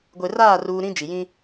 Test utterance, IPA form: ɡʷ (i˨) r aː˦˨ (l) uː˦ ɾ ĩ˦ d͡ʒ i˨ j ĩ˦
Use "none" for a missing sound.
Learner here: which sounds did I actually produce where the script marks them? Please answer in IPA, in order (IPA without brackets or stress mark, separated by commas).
e˨, r